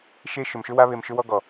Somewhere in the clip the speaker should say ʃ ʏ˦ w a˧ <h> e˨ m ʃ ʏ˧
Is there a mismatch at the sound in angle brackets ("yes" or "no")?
yes